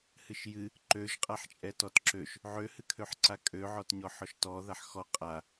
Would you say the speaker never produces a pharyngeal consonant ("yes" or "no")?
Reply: no